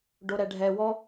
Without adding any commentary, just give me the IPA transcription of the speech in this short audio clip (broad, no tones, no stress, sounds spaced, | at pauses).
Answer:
ɖ o ɾ ɛ ɖʱ ɛ w ɔ